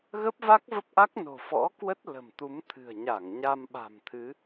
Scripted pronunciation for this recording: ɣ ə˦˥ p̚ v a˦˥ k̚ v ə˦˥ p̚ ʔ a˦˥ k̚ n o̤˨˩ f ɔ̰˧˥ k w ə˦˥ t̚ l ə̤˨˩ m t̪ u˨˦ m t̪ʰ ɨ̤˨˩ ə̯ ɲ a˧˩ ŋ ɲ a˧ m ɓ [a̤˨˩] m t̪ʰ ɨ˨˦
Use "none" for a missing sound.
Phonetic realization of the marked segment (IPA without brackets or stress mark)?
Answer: a̤˨˩